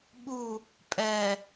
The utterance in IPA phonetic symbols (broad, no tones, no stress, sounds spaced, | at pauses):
ɓ u | pʼ ɛ